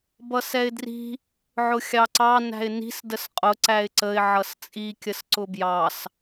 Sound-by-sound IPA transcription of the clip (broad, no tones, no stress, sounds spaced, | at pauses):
b ʌ s ɛ ɪ̯ d r i̤ | ʕ ʊ xʲ ɑ ǀ ɑ n æ̤ ɪ̯ n i̤ s d ə s qʼ ʊ ǀ æ ɪ̯ ǀ ə ɪ̯ ʕ ʌ s t͡sʼ i kʲ ə s ǀ ʊ b j ɑ s